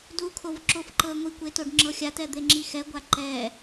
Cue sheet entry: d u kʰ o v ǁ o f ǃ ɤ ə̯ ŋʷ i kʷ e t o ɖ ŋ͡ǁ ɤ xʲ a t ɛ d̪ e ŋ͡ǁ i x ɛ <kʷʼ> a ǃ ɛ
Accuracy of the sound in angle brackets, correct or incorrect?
incorrect